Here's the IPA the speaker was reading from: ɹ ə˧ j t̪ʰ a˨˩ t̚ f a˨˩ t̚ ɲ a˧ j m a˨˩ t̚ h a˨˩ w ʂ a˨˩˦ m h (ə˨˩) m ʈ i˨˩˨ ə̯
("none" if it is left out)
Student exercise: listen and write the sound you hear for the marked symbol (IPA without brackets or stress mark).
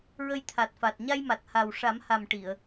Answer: a˨˩